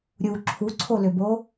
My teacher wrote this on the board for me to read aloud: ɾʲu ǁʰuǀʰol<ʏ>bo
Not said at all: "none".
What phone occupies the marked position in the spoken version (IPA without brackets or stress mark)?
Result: ʏ